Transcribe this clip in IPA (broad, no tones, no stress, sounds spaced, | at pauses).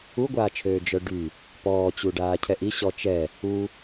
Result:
u ɡʷ aː t͡ʃʰ øː d͡ʒ œ ɖ y | p ɔː t͡ɕ u ɖ aː cʰ ɛ ʔ i ɕ ɔ t͡ʃ ɛ | u